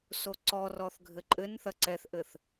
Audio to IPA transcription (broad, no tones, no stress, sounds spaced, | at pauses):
s o ǀ ɔ r ɔ θ ɡʱ ɘ ǃʼ ɘ n θ ɐ ǀ ɛ θ ʔ ɘ θ